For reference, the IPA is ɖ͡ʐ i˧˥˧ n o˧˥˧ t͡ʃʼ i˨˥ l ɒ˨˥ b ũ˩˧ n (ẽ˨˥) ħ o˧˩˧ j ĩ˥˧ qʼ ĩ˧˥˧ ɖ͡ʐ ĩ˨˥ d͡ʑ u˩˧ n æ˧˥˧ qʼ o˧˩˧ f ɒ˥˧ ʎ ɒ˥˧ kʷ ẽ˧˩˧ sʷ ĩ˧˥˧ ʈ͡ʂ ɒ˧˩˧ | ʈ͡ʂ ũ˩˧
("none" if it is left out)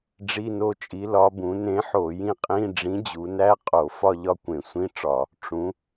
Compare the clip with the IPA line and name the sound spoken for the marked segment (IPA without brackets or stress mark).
ẽ˨˥